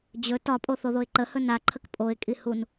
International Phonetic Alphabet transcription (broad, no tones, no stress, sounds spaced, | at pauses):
d͡ʑ ɵ t ɒ pʼ o θ o ð o ɪ̯ ǃ ə h ɵ n a ǃʰ ə k pʼ o ɪ̯ kʼ i h u n